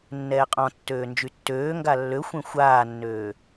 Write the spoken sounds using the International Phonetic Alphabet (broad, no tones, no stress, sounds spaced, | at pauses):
nː ɛː qʼ ɔ̃ tː øː n d͡ʒ y tː øː ŋ ɡ a lː ø xʷ ẽ xʷ aː nː øː